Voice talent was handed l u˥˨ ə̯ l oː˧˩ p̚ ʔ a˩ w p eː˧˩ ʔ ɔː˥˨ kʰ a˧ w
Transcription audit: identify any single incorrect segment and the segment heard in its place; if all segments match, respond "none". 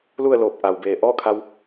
p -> b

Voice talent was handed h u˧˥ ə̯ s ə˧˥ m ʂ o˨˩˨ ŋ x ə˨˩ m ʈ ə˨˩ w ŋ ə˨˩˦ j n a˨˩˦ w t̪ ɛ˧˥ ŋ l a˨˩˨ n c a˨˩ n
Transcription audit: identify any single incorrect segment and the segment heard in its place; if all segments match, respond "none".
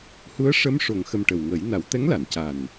s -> ʂ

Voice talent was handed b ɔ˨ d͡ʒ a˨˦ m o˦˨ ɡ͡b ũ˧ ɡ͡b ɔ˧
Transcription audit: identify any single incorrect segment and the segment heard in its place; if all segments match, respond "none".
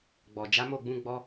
b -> ɡ͡b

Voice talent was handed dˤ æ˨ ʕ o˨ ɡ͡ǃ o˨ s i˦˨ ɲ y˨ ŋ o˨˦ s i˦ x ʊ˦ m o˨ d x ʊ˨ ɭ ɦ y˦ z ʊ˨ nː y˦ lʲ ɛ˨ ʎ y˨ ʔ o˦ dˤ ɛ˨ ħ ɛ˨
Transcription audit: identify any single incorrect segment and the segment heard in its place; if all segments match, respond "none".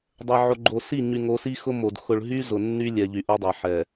æ˨ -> ɛ˨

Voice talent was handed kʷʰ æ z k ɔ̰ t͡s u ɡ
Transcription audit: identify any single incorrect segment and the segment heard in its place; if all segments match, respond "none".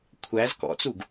none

